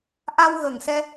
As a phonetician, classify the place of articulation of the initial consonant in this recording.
glottal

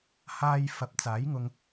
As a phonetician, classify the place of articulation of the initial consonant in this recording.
glottal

